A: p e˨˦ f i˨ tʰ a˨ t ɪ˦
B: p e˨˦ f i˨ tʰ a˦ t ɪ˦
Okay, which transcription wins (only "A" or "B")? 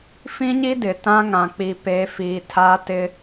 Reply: B